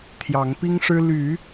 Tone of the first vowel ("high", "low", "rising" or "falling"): rising